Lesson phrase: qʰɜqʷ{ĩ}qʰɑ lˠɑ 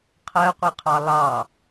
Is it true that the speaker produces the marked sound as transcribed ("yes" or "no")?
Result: no